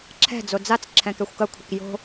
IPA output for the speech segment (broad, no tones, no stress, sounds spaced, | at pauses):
ǁʰ ɛ̤ d͡z o d͡z a t͡s ǁʰ ɛ̃ k ɛ xʷ k ɐ kʷʰ ɘ k j o̤